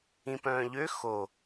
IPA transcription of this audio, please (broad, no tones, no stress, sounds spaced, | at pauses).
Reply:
ĩ p œ̃ː ʎ ø x o